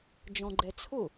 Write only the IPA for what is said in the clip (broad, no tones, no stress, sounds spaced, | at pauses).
d͡ʒ ɔ̃ ɡ͡ǃ ɛ t͡sʰ ʊ